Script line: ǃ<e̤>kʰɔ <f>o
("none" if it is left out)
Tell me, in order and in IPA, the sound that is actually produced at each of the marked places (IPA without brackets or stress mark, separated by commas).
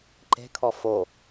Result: e̤, f